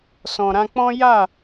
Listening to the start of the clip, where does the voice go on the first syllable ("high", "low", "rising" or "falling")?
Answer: low